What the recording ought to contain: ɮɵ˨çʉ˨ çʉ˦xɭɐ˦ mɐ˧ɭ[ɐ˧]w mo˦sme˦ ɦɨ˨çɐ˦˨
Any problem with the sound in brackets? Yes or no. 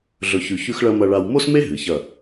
yes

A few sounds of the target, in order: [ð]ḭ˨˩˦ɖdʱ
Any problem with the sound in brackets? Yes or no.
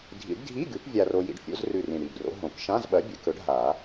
yes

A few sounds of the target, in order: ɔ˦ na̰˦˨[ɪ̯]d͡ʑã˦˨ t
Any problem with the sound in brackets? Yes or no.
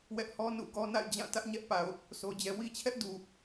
no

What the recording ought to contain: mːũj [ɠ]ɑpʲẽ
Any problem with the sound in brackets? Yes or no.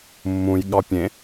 no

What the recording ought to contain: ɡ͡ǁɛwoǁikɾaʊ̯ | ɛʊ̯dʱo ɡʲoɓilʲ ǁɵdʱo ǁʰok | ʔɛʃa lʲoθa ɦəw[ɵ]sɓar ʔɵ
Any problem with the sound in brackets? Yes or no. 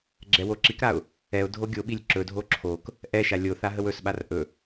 no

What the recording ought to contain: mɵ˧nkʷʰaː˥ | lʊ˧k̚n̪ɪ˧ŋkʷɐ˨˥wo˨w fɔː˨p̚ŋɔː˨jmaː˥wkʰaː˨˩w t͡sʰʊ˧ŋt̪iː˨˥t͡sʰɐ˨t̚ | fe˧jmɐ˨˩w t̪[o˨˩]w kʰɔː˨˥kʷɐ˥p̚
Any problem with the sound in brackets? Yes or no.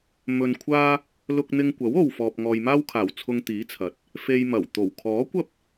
no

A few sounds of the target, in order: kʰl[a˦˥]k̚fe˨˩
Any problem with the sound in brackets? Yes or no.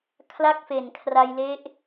yes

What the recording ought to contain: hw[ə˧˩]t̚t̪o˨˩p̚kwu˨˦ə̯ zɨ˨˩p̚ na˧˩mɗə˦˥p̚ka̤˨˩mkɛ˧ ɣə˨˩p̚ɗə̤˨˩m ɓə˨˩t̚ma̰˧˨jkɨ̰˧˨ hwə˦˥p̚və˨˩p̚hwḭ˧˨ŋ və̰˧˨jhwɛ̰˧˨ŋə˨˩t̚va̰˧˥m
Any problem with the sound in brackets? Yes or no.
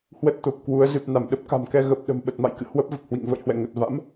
yes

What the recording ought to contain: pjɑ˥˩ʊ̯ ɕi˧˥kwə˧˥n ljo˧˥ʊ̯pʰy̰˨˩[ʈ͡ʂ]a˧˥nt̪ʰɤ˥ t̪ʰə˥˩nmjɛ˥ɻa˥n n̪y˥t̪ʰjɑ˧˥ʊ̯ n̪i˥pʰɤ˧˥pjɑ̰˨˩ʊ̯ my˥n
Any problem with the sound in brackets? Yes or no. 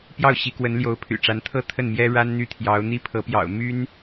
no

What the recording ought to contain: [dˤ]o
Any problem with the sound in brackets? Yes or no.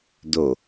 yes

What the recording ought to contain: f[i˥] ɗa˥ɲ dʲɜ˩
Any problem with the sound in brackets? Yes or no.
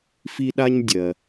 no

